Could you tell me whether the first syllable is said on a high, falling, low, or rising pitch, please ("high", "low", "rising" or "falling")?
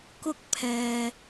high